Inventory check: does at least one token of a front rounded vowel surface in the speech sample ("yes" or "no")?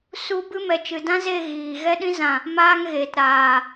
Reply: no